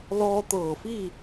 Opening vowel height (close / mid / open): mid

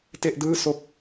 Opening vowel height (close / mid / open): mid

